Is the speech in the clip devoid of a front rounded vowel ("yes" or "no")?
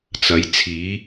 yes